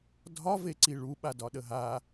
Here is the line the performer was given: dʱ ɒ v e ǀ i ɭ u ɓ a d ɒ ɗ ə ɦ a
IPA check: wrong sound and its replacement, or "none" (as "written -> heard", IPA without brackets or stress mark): none